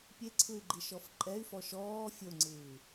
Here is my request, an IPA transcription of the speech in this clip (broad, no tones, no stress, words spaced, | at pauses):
pʲeǀʰɯy̯ɡ͡ǃiʃɔf ǃʼɛy̯fɔ ʃɔː fʲoŋ͡ǀɯː